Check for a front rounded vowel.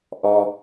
absent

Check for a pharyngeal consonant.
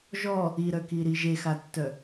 absent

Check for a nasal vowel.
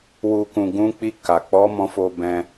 present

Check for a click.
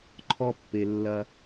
present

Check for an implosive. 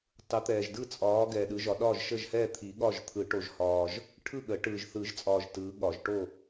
present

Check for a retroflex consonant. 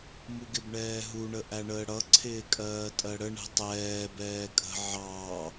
present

